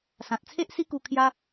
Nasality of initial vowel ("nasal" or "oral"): nasal